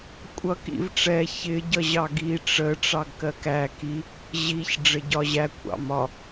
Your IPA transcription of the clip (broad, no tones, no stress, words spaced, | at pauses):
kʷʼʌ kḭv ʈ͡ʂɛ çɪ ɟʌʑɑɡi ʈ͡ʂə ʈ͡ʂɑɡkɜkæ ki | ʑiç ɖ͡ʐɪɟɒʑæ kʷʰɑ̰mɒ